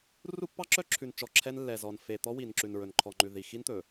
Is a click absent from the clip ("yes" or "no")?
no